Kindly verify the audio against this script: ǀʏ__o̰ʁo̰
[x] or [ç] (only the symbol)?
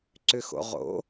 x